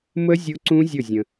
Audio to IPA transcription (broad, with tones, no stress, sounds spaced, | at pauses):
m ə˦˥ zʲ ʊ˦˥ ǀ ũ˦˥ zʲ ʊ˥˨ zʲ ə̃˧